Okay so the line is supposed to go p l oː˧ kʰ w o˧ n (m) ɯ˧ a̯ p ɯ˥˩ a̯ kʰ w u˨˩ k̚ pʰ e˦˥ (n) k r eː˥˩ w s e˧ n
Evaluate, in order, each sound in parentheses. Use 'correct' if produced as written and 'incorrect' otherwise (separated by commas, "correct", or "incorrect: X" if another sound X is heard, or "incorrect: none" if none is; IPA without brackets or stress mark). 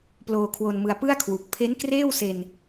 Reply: correct, correct